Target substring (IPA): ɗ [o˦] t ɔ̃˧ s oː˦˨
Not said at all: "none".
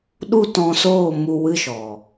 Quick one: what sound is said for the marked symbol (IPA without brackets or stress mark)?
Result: u˦